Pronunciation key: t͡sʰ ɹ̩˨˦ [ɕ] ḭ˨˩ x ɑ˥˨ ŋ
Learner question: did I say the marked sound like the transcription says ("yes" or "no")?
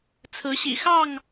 yes